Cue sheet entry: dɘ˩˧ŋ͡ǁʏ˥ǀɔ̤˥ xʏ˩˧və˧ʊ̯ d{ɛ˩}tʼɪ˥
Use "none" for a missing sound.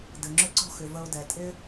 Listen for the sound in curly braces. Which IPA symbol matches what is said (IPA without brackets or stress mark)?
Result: ɛ˩